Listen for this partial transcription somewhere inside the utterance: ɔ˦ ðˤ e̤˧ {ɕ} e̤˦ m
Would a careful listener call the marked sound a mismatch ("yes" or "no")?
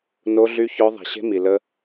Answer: no